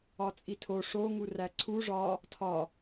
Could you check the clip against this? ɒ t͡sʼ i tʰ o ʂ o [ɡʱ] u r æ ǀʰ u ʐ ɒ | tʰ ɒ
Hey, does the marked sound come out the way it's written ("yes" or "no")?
no